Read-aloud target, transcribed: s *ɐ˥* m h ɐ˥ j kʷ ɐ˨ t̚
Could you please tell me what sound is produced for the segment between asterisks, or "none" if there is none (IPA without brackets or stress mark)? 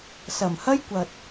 ɐ˨˩